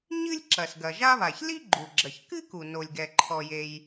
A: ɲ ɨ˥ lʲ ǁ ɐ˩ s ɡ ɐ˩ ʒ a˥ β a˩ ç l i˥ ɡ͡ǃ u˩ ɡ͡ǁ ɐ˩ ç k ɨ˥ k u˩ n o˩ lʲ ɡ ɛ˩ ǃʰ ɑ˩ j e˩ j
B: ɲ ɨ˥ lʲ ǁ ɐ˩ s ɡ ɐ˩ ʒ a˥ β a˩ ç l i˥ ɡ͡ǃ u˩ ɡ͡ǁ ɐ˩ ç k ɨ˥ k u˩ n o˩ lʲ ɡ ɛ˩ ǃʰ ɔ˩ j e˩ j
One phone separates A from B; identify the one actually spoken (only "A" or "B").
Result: B